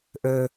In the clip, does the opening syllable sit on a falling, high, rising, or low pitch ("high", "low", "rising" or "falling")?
low